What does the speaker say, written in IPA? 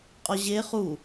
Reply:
qʼ ɒ ʑ e χ u

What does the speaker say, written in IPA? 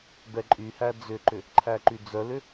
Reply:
b ɛ ǃʼ y h æ d͡z ʏ ǃ ʏ | ǃʰ æ ǃ y d͡z œ l ʏ

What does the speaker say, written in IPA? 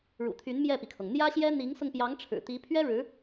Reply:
ɻ ṵ˨˩ t̪ʰ y˧˥ n m j ɛ˥˩ p i˩ kʰ ɤ˩ ŋ n̪ j ä˥ ɕ j ɛ˥ n̪ i˧˥ ŋ s ʊ˧ ŋ p j ɑ˧˥ ŋ ʈ͡ʂʰ ɻ̩˨˩ t̪ i˧˥ pʰ ɥ ɛ˥ ɻ ɻ̩˧˥

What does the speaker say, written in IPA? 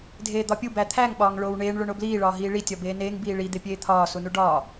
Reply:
dʱ eː d̪ ɒ pʲ u b æ t̪ʰ æ ŋ ɓ ɒː ŋ ɭ oː w ɳ eː ɳ ɭ o ɳ o b l iː ɭ ɒː ɦ iː ɭ i tʲ ɒ b eː n eː ŋ b iː ɭ i d̪ e pʲ eː t̪ʰ ɒː s u n u ɖ ɒː

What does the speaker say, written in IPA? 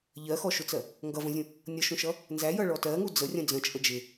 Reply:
ʎ ɜ x ɔ ʃ ʊ t͡s ɜ | ŋ ɡ ʌ v ə̃ zʲ ũ | nʲ ʌ ʃ ũ ʃ ʌ | n z æ j ʌ ɭ ɔ t ɜ ŋ u d͡z ə rʲ ə̃ d͡z ə̃ t͡ʃʼ ə d͡ʒ ɪ

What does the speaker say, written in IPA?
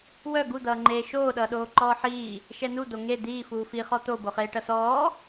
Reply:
w œ ɡ u d̪ ʌː ŋ͡ǃ eː ʃ oː ɗ ʌː ɗ oː ǃ ɔː ħ iː | ʃ ɛ n u d̪ o ŋ e d̪ iː f uː f i χ ɔ t̪ o b o χ eː ʈ ʌ s ɔː

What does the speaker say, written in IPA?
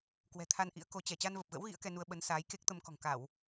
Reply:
k w ɛ̤˨˩ t̪ʰ a˧ n ʔ ḭ˧˥ ə̯ k o˨˦ t͡ɕ ɛ˧˩ t͡ɕ a˧ n v ə˨˩ p̚ ɣ ə̰˧˥ w ɣ ḭ˧˥ ə̯ k ɛ˧ n u˧ ə̯ ɓ ə˨˦ n s aː˨˦ j k e˦˥ k̚ t̪ ə˧ m k ɔ̤˨˩ ŋ k a˧˩˨ w

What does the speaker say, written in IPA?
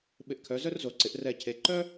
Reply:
ɓ ɪ˧˩ ʔ kʰ œ˩˧ z œ˥ r z o˩˧ ǀ ɪ˩˧ ʔ r ɛ˧˩ cʰ e˩˧ ǃ œ˥

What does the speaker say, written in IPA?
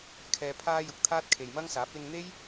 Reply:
kʰ ɛː˧ pʰ aː˥ j ʊ˨ k̚ t̪ʰ aː˥ t̚ kʰ e˨ j m ɐ˥ ŋ s aː˨˥ p̚ l ɪ˧ ŋ n̪ e˥ j

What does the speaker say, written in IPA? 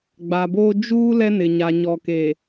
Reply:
ɡ͡b a˨ b oː˦ d͡ʒ uː˦ l ɛ˦ n ɪ˨ ɲ a˨ ɲ ɔ˨ k e˨

